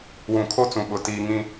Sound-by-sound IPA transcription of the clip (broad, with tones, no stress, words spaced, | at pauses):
wũ˨kʰo˦t͡sũ˨ɓʊ˨ tiː˦ŋĩ˦